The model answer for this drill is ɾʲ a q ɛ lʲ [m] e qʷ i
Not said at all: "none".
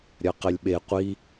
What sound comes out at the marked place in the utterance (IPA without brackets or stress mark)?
ɓ